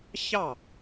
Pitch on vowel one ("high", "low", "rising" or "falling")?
falling